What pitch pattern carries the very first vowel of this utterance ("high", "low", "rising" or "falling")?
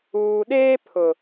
low